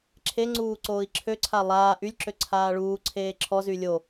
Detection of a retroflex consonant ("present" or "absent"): present